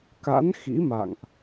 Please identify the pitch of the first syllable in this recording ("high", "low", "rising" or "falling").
rising